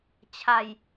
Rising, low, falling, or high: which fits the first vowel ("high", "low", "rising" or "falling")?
low